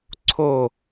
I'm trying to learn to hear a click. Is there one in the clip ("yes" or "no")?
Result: yes